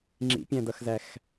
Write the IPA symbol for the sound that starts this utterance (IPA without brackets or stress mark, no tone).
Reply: ŋ͡ǁ